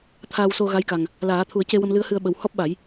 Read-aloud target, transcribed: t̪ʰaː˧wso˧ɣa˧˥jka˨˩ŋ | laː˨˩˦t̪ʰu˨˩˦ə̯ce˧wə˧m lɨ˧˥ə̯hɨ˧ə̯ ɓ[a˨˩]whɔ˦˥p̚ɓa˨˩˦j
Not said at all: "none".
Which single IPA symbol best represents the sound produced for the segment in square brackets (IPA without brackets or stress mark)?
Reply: ə˨˩